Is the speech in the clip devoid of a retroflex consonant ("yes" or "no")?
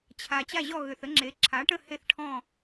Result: no